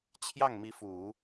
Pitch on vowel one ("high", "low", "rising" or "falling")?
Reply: falling